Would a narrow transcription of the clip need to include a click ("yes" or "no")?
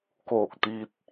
no